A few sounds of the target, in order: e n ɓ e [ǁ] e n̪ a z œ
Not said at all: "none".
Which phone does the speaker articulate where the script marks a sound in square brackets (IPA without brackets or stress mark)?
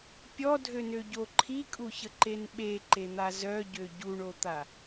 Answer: ǃ